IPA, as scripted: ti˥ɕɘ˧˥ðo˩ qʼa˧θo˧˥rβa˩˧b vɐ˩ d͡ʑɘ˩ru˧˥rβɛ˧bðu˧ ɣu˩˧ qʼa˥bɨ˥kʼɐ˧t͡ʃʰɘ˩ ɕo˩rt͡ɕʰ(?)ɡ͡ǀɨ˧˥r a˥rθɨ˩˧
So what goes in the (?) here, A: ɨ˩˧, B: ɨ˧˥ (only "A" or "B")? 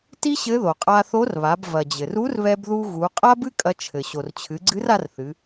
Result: A